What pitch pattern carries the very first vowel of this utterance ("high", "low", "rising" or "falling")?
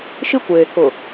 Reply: high